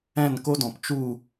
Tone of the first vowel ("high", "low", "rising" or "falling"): falling